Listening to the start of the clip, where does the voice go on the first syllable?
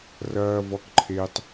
high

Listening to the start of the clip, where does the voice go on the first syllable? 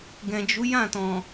low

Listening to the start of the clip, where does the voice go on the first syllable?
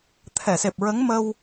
low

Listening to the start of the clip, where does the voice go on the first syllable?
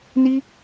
high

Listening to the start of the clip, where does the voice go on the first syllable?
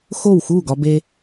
falling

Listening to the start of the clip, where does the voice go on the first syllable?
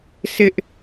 high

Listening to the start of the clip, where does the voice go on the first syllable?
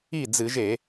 falling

